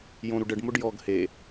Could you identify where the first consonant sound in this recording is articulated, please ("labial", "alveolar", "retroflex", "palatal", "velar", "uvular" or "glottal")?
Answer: palatal